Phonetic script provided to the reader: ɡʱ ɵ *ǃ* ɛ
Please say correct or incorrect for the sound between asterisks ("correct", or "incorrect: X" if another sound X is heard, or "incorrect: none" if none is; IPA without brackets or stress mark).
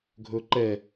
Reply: correct